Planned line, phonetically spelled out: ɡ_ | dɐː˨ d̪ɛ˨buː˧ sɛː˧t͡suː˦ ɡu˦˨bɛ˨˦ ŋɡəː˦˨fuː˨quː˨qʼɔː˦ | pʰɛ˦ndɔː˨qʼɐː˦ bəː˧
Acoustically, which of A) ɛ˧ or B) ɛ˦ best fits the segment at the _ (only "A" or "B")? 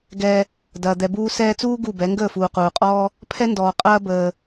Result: A